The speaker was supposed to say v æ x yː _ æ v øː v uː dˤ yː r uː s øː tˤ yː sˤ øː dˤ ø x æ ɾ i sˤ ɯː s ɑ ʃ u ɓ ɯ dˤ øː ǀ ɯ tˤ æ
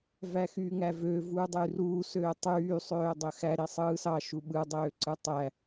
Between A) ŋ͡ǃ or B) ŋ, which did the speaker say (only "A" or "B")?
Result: B